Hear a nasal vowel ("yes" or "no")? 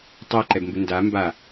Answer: no